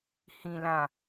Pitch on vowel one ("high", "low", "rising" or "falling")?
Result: low